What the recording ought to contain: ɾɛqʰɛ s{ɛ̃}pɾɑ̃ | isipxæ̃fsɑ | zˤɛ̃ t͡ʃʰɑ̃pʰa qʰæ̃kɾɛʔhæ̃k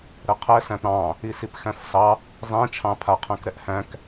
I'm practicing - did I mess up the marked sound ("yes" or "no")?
yes